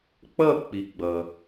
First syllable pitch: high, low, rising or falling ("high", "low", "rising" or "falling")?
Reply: falling